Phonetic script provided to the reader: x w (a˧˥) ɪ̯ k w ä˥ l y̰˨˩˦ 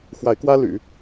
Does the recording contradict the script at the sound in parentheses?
no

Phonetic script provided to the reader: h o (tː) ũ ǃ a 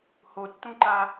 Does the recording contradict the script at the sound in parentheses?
no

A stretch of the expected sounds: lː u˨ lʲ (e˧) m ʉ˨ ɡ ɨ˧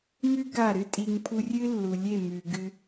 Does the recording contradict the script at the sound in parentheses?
yes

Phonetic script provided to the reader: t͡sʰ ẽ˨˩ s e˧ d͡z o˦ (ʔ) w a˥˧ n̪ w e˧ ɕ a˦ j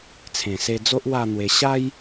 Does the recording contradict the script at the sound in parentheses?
no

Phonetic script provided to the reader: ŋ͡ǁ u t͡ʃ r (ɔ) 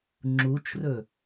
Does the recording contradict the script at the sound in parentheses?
yes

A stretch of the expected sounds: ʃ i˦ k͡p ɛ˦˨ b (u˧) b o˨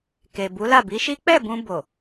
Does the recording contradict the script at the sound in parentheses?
yes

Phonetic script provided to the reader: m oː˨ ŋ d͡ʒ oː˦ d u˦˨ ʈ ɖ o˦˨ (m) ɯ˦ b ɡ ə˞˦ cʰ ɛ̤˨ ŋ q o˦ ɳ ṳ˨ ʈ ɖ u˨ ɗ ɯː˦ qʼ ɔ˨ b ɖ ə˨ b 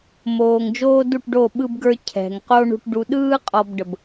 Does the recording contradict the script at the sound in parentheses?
yes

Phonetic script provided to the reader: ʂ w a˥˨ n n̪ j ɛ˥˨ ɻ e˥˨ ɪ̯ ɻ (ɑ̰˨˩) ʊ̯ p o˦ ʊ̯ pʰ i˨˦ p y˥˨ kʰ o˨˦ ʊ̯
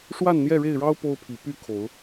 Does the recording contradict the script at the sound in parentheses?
yes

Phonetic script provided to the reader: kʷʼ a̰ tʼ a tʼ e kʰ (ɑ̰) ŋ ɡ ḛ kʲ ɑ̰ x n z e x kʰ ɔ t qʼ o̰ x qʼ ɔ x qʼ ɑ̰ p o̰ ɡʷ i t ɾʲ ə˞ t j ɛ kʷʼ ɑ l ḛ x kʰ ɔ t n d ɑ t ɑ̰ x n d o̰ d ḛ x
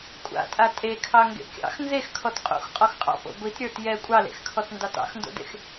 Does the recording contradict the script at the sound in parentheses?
yes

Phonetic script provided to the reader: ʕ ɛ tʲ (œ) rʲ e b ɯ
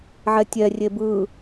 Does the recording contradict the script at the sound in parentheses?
yes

